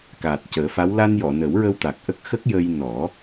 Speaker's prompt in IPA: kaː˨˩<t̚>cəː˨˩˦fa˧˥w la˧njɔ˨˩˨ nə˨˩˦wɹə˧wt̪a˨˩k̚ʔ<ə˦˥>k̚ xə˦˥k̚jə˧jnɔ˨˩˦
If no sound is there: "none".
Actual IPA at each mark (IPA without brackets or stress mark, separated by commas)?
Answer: t̚, ə˦˥